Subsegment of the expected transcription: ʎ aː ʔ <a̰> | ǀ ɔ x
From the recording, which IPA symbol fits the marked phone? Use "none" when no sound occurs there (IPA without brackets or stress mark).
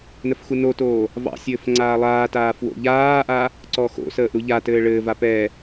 a